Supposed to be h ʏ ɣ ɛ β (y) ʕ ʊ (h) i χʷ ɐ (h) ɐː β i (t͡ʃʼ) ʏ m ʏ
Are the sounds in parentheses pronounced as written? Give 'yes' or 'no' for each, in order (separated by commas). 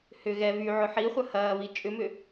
yes, no, yes, yes